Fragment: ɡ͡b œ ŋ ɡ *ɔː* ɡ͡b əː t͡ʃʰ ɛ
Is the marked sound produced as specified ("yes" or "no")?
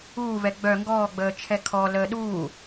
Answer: yes